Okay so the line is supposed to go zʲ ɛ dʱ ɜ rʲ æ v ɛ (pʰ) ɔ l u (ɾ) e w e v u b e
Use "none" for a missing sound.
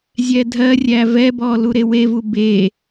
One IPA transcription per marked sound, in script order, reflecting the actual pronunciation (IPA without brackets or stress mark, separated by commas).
b, ɾ